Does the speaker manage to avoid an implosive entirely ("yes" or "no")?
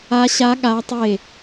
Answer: no